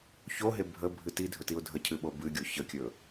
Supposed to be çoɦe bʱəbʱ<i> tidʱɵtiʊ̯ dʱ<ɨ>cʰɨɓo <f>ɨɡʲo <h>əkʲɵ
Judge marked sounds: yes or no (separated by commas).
no, no, no, no